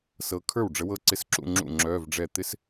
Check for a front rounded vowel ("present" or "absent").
present